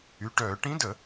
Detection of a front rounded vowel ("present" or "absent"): present